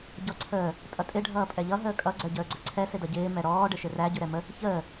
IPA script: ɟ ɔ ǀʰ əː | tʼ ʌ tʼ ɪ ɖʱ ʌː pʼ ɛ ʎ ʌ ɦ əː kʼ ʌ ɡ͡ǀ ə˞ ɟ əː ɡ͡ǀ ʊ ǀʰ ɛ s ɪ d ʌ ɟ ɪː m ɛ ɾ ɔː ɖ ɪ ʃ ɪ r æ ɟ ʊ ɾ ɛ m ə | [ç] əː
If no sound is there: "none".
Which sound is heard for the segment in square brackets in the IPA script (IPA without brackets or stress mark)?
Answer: ç